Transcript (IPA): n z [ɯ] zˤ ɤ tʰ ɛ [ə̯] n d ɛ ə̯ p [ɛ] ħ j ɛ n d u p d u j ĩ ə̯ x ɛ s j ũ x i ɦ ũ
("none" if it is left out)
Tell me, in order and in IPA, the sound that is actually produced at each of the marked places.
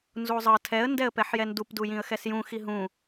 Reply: u, ə̯, ɛ

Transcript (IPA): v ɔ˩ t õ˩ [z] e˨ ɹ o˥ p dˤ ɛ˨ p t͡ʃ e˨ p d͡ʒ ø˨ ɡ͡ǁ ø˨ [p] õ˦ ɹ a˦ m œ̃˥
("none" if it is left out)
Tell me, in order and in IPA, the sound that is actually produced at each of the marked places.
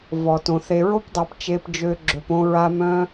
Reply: θ, p

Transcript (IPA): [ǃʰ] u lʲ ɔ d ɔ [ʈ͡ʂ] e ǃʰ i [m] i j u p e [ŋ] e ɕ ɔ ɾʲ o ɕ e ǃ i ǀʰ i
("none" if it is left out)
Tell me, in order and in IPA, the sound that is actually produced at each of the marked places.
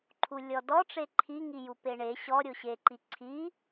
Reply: ǃʰ, ʈ͡ʂ, ŋ, ɳ

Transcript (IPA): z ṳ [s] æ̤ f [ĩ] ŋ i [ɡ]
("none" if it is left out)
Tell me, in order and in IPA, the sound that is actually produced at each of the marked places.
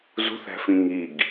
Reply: θ, ĩ, ɡ

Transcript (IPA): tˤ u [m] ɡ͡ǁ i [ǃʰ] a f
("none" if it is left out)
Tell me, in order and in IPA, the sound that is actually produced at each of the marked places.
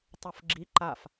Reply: f, ǃ

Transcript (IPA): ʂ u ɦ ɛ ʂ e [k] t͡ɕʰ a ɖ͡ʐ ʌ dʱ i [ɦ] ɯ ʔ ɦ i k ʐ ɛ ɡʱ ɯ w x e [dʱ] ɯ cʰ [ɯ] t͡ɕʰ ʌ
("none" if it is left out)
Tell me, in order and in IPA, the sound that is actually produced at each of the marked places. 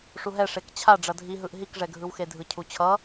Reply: k, ɦ, dʱ, u

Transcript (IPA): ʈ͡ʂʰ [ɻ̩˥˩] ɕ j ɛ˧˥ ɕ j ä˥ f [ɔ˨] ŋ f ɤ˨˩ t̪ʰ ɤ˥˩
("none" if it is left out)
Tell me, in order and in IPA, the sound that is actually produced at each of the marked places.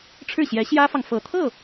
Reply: ɻ̩˥˩, ɑ˨

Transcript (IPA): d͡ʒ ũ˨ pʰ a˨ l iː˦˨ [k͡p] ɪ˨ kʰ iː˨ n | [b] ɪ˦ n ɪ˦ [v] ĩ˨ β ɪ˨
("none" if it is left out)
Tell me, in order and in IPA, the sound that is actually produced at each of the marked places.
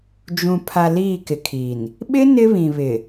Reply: k, ɓ, β

